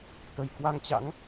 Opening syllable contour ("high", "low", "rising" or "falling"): low